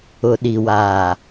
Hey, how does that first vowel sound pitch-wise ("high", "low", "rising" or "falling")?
low